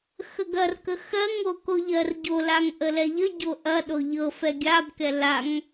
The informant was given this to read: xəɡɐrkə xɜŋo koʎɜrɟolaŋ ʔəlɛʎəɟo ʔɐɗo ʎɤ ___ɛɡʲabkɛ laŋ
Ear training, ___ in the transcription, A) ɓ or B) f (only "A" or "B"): B